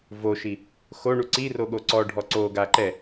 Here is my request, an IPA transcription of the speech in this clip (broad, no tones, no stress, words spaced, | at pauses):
voʃi | xoɳu ǀiroɠo ǀɔɖʱɔ ǀoɡa ǃɛ